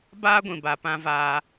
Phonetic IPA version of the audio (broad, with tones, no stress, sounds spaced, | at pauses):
b aː˦ ɡʷ ĩ˨ b a˨ p ã˧ v aː˧